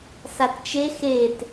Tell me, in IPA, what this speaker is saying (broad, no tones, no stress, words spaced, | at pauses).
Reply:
satt͡ʃe xet